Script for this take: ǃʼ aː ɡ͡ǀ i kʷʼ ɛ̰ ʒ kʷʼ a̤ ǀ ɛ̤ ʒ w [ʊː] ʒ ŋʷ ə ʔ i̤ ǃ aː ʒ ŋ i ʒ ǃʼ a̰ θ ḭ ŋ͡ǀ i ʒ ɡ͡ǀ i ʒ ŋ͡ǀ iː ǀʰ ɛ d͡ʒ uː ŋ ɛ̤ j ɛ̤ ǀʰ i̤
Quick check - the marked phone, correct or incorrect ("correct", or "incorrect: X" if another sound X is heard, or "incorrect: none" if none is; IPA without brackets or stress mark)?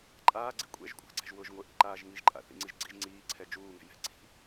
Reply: correct